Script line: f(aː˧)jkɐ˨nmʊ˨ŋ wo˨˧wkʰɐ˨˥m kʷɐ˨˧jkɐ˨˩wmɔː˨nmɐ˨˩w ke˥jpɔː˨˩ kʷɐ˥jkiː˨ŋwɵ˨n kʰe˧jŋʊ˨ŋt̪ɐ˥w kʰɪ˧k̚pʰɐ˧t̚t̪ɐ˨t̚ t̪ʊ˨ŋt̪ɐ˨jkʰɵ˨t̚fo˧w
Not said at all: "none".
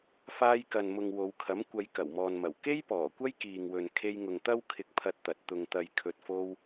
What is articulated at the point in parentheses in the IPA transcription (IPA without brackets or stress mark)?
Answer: aː˧